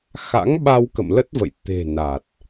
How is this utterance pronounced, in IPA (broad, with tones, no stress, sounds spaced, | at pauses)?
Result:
x a̰˧˥ ŋ ɓ a˧ w k ə̰˧˨ m l ə˦˥ t̚ v ə̰˧˨ j t̪ e̤˨˩ n a˨˩ t̚